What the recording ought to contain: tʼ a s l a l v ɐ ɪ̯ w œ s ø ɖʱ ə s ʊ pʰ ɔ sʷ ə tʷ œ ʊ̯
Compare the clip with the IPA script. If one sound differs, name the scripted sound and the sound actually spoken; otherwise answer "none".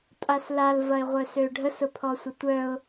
w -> ʁʷ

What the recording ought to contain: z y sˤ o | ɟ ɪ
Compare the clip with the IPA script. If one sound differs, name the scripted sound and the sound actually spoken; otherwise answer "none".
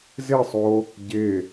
y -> ɪ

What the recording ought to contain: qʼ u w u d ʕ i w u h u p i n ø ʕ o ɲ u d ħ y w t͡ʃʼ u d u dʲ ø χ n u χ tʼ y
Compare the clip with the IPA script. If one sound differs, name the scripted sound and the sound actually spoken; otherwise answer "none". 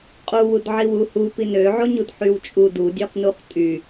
none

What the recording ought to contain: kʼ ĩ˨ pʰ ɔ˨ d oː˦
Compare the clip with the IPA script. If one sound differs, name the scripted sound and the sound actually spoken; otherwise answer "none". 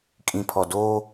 none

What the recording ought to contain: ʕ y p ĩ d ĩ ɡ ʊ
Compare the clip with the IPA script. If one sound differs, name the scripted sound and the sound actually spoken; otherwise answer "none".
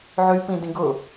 none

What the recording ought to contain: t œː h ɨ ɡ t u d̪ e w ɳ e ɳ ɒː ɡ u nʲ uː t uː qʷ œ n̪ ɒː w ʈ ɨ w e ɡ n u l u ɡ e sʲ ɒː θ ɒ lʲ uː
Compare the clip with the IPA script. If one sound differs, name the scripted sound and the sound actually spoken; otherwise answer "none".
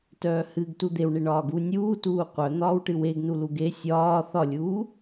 none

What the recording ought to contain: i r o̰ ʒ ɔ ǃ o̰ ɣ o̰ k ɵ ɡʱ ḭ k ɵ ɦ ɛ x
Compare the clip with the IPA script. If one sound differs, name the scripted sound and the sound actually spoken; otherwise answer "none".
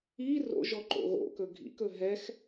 none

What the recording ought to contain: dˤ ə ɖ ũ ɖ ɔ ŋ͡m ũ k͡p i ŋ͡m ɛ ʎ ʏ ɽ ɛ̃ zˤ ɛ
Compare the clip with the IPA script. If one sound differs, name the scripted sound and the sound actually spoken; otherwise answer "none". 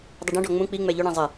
none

